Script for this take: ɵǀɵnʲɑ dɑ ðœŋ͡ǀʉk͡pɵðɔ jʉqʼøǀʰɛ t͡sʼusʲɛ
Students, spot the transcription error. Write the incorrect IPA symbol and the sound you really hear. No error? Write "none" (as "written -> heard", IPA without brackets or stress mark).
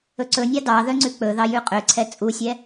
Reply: ɔ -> ɑ